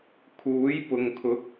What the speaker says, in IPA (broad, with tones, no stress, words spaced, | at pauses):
kʰuː˨˥jpʊ˨ŋkʰʊ˨˥k̚